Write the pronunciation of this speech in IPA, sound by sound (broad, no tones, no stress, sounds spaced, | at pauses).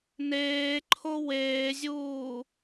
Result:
n eː ǃʰ o w eː zʲ uː